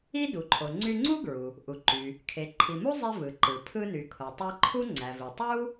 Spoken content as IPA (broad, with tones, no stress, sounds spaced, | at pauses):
i˥ d u˩ ǃʰ o˩ ŋ͡ǀ y˧ ŋ͡ǀ u˥ ɡ ɹ u˩ | ʔ u˩ ǃ y˩ | kʰ e˩ ǃʰ i˩ m u˥ zˤ i˧ v ɯ˩ ǃ ɯ˩ pʰ ɯ˧ n y˩ kʰ o˩ tˤ i˧ ǃʰ u˥ ŋ͡ǀ æ˩ v i˩ tˤ u˥